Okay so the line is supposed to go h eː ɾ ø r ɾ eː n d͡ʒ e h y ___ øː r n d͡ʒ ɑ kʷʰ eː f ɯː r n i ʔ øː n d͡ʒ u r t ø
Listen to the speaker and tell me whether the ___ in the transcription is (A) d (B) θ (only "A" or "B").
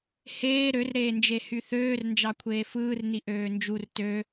B